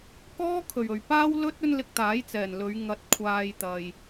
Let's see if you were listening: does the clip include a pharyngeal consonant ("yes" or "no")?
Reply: no